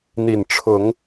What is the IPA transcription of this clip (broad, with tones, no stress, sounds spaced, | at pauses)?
n̪ i˨˩ n ʈ͡ʂʰ ʊ˨˦ ŋ